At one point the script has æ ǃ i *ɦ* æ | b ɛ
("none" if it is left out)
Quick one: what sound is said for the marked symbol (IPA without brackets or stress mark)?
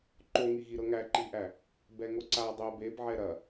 ʔ